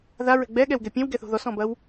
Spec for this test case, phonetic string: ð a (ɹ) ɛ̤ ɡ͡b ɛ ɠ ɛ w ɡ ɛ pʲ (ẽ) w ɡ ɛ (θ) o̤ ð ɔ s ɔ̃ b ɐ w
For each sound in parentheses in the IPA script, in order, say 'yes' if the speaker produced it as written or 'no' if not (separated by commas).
yes, yes, yes